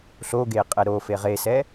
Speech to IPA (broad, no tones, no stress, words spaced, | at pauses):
ɬoɡeqʼɛ ɾofe ʁesɛ